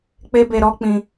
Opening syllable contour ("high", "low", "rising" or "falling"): high